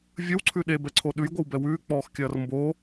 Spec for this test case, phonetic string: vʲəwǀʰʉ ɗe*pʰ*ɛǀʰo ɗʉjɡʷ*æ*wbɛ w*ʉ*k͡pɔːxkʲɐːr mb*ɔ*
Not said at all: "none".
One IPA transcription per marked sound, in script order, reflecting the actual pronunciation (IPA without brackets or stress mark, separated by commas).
b, ə, ʉː, o